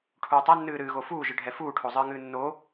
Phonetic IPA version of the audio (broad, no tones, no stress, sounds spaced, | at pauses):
ʈʰ uː tˤ ɛ nː ɨː ɾ ɨː ɣ o f uː ʒ ɨ ɖʱ ɛ f uː ʈʰ o zˤ ɨː ŋ ɨː nː o